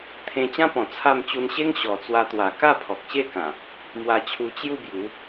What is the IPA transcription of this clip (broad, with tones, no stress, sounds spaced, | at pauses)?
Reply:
t̪ʰ ẽ˧ t͡ɕ ã˦ p ɔ̃˨˩ t͡sʰ a˥˧ m t͡ɕ u˧ n ɕ e˦ ŋ ɕ ɔ˨˩ t͡s w a˧ t̪ w a˨˩ k a˥˧ pʰ ɔ˨ k̚ ɕ e˥˧ k ã˨˩ | m w a˧ t͡ɕʰ u˧ t͡ɕ j u˥˧ b j u˨˦